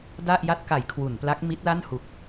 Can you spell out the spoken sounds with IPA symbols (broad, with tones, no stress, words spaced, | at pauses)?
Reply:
da˥˩ʔja˥˩t̚ka˩˦j kʰwu˩˦npla˦˥k̚mi˦˥t̚la˥˩n hu˨˩k̚